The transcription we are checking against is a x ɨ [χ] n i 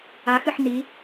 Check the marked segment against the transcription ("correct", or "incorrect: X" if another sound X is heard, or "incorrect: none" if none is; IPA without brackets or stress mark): incorrect: ħ